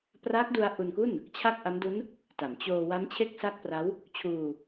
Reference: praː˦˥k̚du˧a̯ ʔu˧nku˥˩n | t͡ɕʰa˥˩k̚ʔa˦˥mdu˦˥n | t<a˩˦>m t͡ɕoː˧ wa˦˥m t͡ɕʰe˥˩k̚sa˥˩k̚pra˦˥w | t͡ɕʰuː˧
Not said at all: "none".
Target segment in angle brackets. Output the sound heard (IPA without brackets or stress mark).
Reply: a˩˦